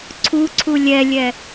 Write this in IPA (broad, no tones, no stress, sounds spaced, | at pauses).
ǀʰ u ǀʰ u lʲ ɛ lʲ ɛ